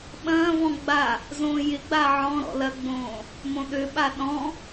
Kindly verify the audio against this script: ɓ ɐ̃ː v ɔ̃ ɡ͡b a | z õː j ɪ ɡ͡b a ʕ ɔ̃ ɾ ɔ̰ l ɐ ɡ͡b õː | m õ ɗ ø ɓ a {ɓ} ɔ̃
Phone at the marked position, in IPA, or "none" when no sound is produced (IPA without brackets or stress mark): ɗ